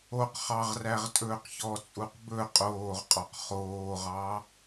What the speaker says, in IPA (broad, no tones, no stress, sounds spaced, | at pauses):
o q χ ɑ ʁ r æ ʁ tʼ ɵː q ç ɔ t͡sʼ u q b ɵ qʼ oː ʁ qʼ ɔ q χ oː ʁ ɑ